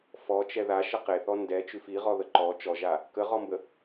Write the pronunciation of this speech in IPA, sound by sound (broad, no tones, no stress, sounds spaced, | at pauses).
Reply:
f ɔ t͡ʃ ɛ ð a ʃ ə q e θ ɔ n d ɛ t͡ʃ ʉ f i ʁ ɔ ð ə ǃ ɔ t͡ʃ ɔ ʒ a | k ə ʁ ɔ m b ə